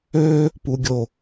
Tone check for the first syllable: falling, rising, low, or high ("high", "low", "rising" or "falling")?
high